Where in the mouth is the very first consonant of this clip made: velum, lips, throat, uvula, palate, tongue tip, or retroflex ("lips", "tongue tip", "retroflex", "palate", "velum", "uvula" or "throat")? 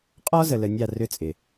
uvula